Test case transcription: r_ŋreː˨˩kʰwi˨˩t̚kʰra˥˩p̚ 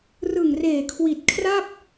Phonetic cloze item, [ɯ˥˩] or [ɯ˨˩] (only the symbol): ɯ˨˩